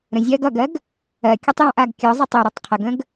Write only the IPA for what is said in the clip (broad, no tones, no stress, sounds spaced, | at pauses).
ɾ ə̃ zʲ ɜ ɡ ʌ ɡ ɜ ɡ | ɜ kʲ ʌ tˤ j ɔ̃ ʔ a ɡ kʲ ɔ zˤ ɜ tˤ ø ɾ ʌ tˤ qʰ ə ɡ ə̃ ɡ